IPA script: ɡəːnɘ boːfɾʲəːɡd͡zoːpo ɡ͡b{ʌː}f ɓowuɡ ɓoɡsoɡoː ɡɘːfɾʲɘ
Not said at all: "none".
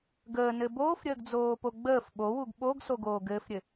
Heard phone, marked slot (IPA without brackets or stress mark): əː